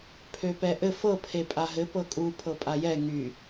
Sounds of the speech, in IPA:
pʰøpɛʔɘ fɤ pʰepʼaɦɘ pɤkʼu pʰɤpʼajɛ ŋy

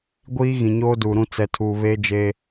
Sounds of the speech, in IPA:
ɡʷiː˦ ɣĩ˨ɲoː˦duː˨ɾũ˦ t͡sɛ˨tʰuː˨ βe˦d͡ʒe˦

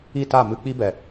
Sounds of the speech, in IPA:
i˦˨ta˦˨ mɨ˧k͡pi˦bɛ˨

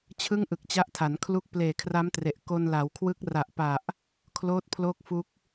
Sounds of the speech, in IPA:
t͡ɕʰɯ˥˩ŋʔɯ˨˩k̚t͡ɕa˦˥ʔtʰa˩˦n kʰlu˦˥k̚ pleː˨˩kʰra˦˥mtre˨˩ʔ ko˧nla˩˦wkʰwɯ˦˥k̚ ra˨˩ʔpa˨˩ʔ | kʰloː˦˥t̚ pʰloː˥˩k̚fu˦˥k̚

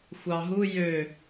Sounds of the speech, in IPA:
xʷɑɦu jø

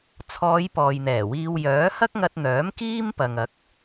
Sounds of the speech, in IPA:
t͡sʰɔː˨˧j pɔː˨jn̪ɛː˨˩wiː˧w jœː˨˥ hɐ˥k̚ŋɐ˧t̚n̪œː˨˥m kiː˥mpɐ˨ŋɐ˨˥k̚

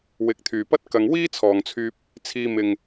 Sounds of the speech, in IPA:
wɪ˨˥k̚t̪ʰyː˨pɐ˥t̚ kɐ˧ŋ wiː˥t͡sʰɔː˨ŋt͡sʰyː˧p̚ | t͡sʰiː˧ mɪ˨ŋ

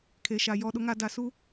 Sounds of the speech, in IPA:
kʰe˨ʃa˨ jɔ˨ɗʊ˨ŋa˨ da˨su˦

